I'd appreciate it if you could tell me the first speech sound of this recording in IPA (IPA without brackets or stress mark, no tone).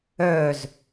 œ